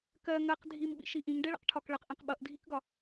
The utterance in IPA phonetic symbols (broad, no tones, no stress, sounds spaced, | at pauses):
k ɜ ŋ ɜ q dʱ i m ɓ ḭ ʃ i ʔ ĩ ŋ ɖ ɛ ɭ ə̰ q ʈʰ ɒ k ɭ ə q ʔ ĩ q ɓ ʌ ʔ dʱ i k ɡ ɒ